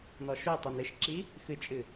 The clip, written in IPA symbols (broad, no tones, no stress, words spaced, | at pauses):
nɔʃo tˤinɨʃǁi | xɨt͡ʃʼɨ